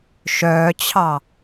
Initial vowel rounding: rounded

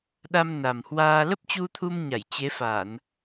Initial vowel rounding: unrounded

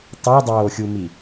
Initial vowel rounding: rounded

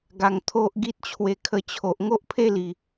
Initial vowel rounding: unrounded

